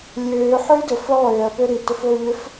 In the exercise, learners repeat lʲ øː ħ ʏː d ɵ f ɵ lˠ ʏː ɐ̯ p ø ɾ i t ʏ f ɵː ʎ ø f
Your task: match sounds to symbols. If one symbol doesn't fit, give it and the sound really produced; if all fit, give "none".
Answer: none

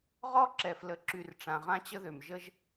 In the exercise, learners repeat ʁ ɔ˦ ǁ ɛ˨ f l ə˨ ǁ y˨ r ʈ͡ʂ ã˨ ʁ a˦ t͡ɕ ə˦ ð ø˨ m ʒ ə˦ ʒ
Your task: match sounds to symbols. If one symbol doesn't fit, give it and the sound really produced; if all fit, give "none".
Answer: a˦ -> ã˦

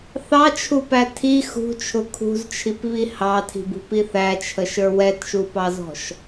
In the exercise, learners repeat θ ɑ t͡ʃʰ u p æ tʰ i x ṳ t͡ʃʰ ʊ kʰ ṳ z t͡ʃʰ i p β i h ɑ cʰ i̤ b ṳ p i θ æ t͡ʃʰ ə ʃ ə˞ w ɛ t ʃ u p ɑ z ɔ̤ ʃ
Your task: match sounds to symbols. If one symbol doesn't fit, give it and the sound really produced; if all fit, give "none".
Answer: cʰ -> tʰ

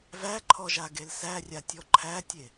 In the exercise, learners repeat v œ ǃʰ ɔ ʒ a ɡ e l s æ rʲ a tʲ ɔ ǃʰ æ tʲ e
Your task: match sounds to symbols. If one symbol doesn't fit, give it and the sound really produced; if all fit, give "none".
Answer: œ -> æ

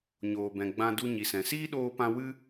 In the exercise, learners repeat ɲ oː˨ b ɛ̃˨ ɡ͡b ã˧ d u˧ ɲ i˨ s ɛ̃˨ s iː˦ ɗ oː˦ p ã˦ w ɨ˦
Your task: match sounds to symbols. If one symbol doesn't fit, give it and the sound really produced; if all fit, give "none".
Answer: none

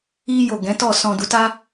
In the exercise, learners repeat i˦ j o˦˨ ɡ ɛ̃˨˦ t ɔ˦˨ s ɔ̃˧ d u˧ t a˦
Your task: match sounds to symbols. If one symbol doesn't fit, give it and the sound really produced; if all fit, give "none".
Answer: none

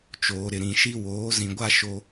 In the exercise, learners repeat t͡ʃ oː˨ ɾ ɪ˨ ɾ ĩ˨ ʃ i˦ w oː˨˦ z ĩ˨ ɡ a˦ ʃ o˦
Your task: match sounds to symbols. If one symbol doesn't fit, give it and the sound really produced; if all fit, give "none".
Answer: ɡ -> ɡʷ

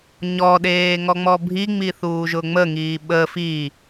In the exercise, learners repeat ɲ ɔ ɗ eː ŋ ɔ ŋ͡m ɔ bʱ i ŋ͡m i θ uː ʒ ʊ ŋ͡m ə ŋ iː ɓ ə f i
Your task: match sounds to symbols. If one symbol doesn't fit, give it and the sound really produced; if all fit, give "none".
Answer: none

